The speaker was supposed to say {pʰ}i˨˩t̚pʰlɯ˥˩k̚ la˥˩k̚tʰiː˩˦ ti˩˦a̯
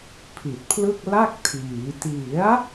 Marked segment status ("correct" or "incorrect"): correct